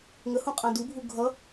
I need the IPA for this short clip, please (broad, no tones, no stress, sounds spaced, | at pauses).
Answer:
ŋ ə h ũ qʼ ã d u bʱ u ɡʱ ʌ